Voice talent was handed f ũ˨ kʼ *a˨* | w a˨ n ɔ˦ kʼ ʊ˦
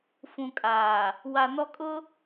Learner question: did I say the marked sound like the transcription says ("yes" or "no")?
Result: no